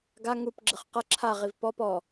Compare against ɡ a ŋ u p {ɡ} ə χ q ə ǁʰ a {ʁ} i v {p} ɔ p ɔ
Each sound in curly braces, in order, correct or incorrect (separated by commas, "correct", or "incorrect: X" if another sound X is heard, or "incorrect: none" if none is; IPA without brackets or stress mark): incorrect: ɡ͡ǁ, correct, correct